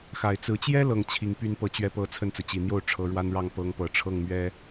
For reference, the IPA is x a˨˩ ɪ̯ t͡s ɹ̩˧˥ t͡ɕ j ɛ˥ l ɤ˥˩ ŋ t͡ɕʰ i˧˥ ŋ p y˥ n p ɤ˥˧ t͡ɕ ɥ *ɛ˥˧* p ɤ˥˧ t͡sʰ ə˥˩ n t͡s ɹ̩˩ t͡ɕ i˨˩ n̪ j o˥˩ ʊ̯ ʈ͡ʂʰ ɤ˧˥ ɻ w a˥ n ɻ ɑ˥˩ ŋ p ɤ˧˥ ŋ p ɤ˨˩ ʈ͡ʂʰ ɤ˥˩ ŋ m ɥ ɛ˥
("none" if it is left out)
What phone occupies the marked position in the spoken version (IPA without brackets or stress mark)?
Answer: ɛ˥˧